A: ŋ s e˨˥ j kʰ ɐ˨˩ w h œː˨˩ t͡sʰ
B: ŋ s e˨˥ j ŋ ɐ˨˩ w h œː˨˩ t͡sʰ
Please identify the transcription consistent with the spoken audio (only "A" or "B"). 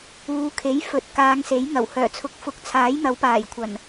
B